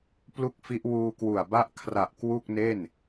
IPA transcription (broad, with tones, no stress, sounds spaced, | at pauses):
p l u˥˩ k̚ f i˦˥ ʔ w uː˧ k w u˨˩ a̯ b a˦˥ ʔ kʰ r a˨˩ ʔ k w u˥˩ k̚ n e˥˩ n